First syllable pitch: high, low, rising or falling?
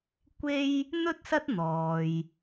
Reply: high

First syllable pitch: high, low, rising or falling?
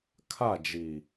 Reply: falling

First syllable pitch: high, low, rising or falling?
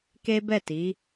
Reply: high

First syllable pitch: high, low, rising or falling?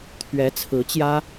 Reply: rising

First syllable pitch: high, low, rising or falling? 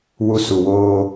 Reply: high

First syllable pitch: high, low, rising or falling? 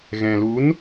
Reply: low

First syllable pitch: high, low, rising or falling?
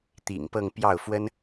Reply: low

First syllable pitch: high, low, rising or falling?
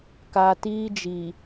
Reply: low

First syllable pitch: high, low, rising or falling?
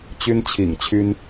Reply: high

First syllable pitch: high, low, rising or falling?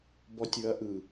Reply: rising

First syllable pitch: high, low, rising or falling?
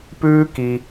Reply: high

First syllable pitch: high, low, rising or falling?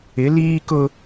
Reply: rising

